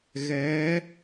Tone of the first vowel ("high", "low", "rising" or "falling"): rising